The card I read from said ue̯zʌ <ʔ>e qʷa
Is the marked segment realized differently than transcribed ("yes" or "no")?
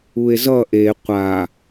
no